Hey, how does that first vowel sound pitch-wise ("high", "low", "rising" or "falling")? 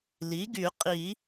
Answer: rising